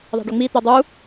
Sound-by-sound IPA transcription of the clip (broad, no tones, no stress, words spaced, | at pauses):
ðˤa̤ɖɵŋ͡mi t̪edˤu